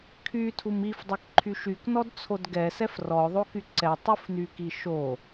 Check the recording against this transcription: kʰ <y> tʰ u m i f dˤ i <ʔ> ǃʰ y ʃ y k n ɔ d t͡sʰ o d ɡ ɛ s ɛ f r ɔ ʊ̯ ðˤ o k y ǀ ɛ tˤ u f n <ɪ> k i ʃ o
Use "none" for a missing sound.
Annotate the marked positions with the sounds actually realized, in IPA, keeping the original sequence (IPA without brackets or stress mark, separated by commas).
y, k, y